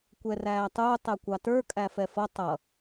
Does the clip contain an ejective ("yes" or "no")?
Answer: yes